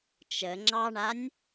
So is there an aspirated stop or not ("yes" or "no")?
no